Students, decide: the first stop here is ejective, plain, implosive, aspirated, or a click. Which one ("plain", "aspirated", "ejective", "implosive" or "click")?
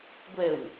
plain